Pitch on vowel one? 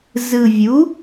low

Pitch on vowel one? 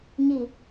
falling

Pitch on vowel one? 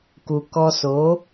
low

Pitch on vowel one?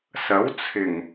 rising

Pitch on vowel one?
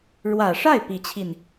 low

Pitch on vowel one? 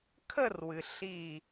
falling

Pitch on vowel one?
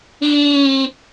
low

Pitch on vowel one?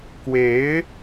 rising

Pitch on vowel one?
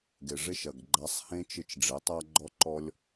low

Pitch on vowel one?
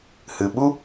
low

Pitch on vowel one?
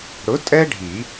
rising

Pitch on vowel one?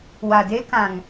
low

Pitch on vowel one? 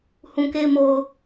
low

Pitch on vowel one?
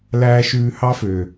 high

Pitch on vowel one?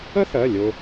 high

